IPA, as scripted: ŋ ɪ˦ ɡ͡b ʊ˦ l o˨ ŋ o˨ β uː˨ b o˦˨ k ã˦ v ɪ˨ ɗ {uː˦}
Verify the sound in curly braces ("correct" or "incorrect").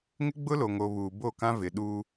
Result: correct